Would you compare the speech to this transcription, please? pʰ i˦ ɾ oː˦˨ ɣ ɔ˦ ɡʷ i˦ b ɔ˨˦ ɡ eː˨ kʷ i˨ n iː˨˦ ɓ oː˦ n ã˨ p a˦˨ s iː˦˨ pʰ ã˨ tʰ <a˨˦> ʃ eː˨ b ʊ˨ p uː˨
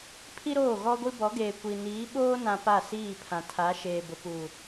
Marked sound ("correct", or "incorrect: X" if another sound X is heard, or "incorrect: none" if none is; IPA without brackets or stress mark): correct